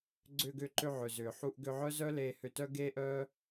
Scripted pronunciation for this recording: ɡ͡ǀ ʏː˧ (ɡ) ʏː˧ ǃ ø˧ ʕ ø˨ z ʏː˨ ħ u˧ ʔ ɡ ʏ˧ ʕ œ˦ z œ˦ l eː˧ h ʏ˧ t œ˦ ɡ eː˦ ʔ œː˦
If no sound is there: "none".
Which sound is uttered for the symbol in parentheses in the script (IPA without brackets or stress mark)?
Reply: ɡ